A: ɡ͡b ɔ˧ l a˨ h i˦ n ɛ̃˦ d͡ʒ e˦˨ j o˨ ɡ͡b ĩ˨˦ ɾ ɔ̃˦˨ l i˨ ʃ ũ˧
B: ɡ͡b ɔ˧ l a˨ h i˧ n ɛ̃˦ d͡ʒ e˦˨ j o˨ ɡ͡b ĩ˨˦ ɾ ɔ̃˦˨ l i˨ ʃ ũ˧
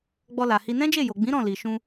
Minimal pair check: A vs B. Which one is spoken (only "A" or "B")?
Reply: B